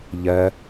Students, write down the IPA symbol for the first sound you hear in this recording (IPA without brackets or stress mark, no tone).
ʎ